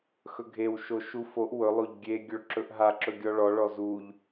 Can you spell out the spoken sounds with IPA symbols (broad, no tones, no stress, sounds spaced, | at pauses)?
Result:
x ɵ ɡʱ e w ʃ o ʃ u f o ʔ w ɵ lˠ o ʎ ɡʲ e ɡʲ ɵ ɭ ǁ ɵ ʔ ɦ a ǁ ɵ ɡʲ ɔ ɭ ɔ ɭ ɔ z u ʎ